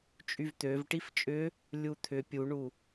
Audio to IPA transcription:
t͡ʃʼ y v t̪ ø v ʈ i f t͡ʃʼ ʏ | lʲ u t̪ʰ ʏ pʲ u ɳ u

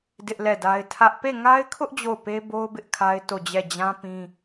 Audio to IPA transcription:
d ɪ˦ ʔ l ɛ˦˨ d a˦ ɪ̯ tʰ ä˦ ʔ p e˦˨ ŋ a˦ ɪ̯ kʰ ʊ˦ ʔ d͡ʑ o˦˨ ʊ̯ p e˦ b o˦ ʊ̯ b ɪ˦ ʔ kʰ a˦ ɪ̯ t o˦˨ d͡ʑ ɛ˦˨ d͡ʑ ã˦ p ĩ˦

